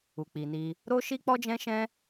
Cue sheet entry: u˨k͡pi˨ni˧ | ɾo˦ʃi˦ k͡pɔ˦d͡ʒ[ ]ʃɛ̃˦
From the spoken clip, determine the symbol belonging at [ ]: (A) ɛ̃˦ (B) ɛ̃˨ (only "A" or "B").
A